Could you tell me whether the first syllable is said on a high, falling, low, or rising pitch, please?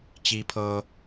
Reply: low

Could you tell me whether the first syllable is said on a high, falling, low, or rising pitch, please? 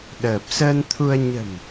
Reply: low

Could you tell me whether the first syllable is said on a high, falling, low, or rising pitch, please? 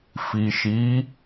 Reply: low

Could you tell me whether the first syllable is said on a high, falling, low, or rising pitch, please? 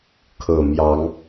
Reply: low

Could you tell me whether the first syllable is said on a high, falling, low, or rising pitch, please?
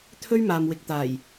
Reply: high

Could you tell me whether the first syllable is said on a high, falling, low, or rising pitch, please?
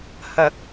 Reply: low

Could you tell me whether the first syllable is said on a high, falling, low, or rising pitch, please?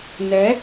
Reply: rising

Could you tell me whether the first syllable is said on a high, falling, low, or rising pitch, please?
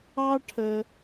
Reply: high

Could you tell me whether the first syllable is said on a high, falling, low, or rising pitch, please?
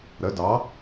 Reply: rising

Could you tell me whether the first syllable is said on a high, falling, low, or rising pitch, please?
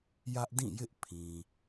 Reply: high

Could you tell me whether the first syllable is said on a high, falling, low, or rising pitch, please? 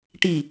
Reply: low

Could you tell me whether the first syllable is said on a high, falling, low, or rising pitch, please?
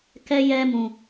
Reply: high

